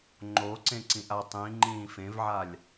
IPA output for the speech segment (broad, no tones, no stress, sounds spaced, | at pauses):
ŋ͡ǃ o ǀ ẽ ǀ ĩ ʔ a tˤ ĩ ŋ͡ǃ ĩː f ẽ v ʕ a lʲ